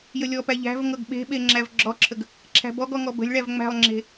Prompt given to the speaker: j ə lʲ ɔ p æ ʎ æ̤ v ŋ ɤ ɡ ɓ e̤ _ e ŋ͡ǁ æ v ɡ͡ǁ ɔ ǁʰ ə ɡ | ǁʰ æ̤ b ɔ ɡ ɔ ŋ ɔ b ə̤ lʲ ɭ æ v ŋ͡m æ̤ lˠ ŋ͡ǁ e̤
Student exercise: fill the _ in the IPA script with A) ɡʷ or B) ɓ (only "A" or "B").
B